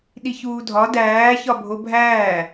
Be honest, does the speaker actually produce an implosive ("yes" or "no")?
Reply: yes